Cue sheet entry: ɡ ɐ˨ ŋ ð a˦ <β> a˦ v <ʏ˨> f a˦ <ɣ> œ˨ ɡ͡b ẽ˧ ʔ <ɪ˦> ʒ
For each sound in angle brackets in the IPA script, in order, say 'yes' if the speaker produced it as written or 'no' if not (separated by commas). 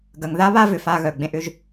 yes, yes, yes, no